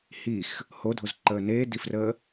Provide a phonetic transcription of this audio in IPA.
h i x | h o dʱ o z ǃ əː n eː d i f r əː

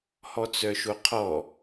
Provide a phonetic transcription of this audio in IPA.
h ɔ t͡s œ ʃ o qʰ ɔ

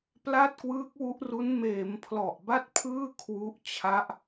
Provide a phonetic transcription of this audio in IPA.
p l a˥˩ t̚ k w ɯː˦˥ k̚ w u˦˥ ʔ r u˦˥ n m eː˩˦ m pʰ l ɔ˨˩ ʔ b a˥˩ t̚ pʰ ɯː˥˩ kʰ w u˦˥ ʔ t͡ɕʰ a˦˥ ʔ

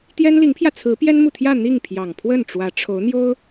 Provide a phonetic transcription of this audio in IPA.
t̪ j ɛ˥ n l i˧˥ ŋ pʰ j ä˧ t͡sʰ ɹ̩˧˥ p j ɛ˥ n m u˨ t̪ʰ j ä˥˧ n̪ i˥˩ ŋ pʰ j ɑ˨˩ ŋ pʰ w ə˥˩ n ʈ͡ʂ w ä˧˥ ʈ͡ʂʰ o˧˥ ʊ̯ n̪ j o˥ ʊ̯

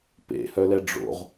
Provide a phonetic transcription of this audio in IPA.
p ḛ h œ l ɛ ɖ͡ʐ o̰ ʁ

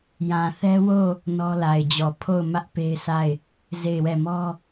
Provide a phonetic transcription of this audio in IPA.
j ã˨ θ ɛ˦ w o˦˨ | n ɔ˦ l a˨ ɪ̯ d͡ʑ ɔ˨ pʰ o˦˨ ʊ̯ m ä˦ ʔ p e˦ ɪ̯ sʰ a˦˨ ɪ̯ | z e˦˨ ɪ̯ w ɛ˦˨ m ɔ˦

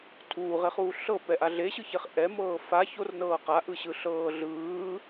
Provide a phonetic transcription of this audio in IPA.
tʰ uː ʁ e χ uː ɬ ɤ p ɛ ʔ a ɮ e ɕ ɯ ç e χ ʔ ɛ m ɤː f a ç o r n ɤː q a ʔ ɯ ɕ ɯ ɬ ɤː ɮ ɯː

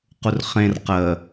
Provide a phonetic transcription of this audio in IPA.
q u r χ ẽ r q ə

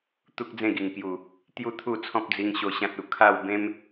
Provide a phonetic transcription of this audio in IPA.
t̪ u˦ k̚ d͡z ẽ˥˧ ɡ i˨˩ ŋ k j u˨˩ | t̪ j u˦ t̪ʰ u˥˧ t͡sʰ ɔ̃˦ p̚ d͡z i˧ ŋ ɕ o˧ ɕ ã˦ t̚ u˨˩ kʰ a˥˧ w b ẽ˦ m

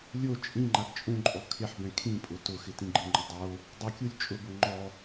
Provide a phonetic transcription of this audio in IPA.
lʲ o t͡ʃʼ ĩ ŋ͡ǃ a ɡ t͡ʃʼ ũ ǃʼ ɔ kʰ ɪ ħ b ɛ̃ kʰ ĩ pʼ ʊ t ʊ x ɪ t ĩ ɡ͡ǃ ɪ ŋ͡ǃ ʊ dˤ o | dˤ ʊ kʲ u lʲ t͡ʃʼ ʊ b ʊ ŋ͡ǃ ɔ

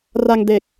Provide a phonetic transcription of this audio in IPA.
r a˧ ŋ d e˨˩ k̚

